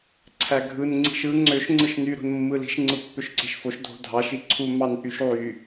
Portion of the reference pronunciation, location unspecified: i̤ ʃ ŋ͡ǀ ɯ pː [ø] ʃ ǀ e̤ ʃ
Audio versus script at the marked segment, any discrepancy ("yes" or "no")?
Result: no